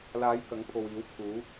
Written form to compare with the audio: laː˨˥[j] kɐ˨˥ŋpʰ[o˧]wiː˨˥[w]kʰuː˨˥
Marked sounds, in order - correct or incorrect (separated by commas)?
correct, incorrect, correct